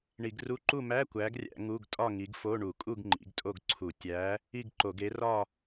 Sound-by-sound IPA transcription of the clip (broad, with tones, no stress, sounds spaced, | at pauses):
ɳ i˧˩˧ ɡ r u˧˥˧ ǃ u˥˨ m æ˧˥˧ kʷ æ˨˦ ɡ rʲ æ̰˧˩˧ ŋ u˧˥˧ ɡ tʼ ɒ˥˨ ŋ i˨˦ ɡ f o˧˥˧ ɳ u˧˩˧ kʼ u˥˨ ɡ ŋ͡ǃ ḭ˨˦ ɡ tʼ o˥˨ ɡ ǀʰ u˧˩˧ tʲ æ˨˦ | i˥˨ ɡ ǃ o˧˩˧ ɡ e˨˦ r ɒ˥˨